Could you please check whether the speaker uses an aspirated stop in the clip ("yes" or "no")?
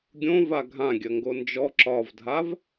no